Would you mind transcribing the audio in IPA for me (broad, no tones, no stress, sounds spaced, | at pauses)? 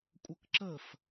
kʷʼ ə k ǁ ə f